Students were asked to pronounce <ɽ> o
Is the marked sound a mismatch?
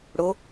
no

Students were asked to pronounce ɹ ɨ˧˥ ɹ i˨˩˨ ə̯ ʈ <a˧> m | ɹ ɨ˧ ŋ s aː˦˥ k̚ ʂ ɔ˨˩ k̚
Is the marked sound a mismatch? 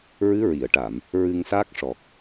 yes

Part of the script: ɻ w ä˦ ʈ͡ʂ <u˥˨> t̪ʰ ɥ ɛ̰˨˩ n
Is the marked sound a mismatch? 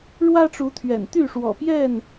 yes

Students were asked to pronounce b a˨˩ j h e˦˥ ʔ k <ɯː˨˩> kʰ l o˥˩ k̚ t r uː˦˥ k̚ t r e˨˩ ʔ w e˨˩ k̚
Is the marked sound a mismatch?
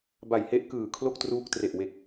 no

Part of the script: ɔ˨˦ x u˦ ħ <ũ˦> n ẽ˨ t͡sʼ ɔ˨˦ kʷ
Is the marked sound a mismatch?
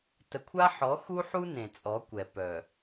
yes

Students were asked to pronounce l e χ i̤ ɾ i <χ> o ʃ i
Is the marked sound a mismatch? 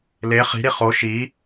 no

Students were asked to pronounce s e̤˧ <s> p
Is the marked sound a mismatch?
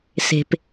yes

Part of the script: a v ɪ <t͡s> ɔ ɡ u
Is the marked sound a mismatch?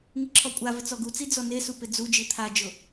no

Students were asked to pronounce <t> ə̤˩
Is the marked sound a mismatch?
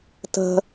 no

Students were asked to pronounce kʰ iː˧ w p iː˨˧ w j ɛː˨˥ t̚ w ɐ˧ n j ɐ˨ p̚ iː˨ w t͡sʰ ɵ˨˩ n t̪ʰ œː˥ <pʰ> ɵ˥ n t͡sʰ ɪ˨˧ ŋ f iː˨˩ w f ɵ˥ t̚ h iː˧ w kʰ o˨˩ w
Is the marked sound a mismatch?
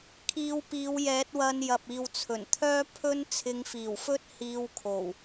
no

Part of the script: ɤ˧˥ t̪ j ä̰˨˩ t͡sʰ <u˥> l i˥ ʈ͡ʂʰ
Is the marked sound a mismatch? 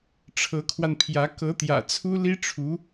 no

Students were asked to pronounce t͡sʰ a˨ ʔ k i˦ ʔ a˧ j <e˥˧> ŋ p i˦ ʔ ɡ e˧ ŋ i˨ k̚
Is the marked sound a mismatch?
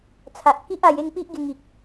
no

